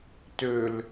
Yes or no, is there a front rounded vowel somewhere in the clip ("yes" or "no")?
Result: yes